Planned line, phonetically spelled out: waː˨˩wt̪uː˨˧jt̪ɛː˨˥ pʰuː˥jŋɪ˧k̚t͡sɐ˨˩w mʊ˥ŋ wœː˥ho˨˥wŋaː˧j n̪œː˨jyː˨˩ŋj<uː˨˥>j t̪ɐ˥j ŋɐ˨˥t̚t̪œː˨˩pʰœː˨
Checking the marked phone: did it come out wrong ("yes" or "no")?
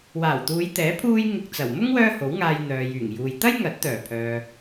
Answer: yes